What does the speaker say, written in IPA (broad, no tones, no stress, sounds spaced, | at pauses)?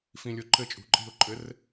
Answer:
f ĩ lʲ o ǃ ɘ t͡ʃʼ ṳ ǃʼ i̤ ʊ̯ ǃʼ ɘ r